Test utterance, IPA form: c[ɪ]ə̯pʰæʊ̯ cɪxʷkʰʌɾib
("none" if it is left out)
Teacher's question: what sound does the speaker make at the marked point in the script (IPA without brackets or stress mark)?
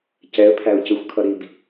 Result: ɛ